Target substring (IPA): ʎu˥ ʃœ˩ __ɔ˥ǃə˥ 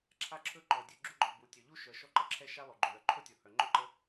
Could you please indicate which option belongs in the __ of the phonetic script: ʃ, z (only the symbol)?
ʃ